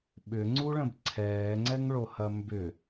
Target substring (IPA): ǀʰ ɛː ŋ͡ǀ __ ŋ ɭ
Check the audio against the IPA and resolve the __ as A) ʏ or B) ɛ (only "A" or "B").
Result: B